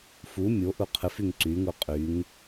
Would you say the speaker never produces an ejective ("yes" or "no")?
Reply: no